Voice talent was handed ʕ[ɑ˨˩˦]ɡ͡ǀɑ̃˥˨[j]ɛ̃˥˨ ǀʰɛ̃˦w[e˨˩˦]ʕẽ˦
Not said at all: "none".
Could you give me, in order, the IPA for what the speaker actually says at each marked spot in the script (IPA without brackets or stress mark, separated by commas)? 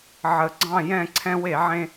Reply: ə˨˩˦, j, e˨˩˦